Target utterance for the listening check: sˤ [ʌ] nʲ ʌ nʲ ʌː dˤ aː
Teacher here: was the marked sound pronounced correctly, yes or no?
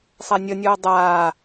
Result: no